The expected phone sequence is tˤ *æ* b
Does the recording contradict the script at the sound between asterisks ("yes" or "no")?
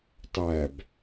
no